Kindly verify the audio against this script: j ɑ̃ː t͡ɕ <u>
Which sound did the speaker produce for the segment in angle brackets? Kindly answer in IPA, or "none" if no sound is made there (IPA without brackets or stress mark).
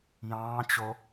o